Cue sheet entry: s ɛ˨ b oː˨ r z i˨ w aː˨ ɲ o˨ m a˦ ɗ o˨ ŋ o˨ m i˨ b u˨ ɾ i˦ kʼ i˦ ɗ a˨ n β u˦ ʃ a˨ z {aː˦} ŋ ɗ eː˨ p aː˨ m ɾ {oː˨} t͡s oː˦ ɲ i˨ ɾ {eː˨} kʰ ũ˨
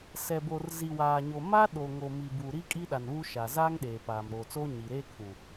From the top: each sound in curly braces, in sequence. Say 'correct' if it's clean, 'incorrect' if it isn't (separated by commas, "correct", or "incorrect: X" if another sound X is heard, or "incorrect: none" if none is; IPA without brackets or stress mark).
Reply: correct, correct, incorrect: eː˦